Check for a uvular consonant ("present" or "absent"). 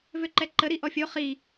present